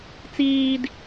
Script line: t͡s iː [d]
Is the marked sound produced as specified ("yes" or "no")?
yes